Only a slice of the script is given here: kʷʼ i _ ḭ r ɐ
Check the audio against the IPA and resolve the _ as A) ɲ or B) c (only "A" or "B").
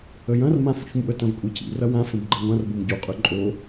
B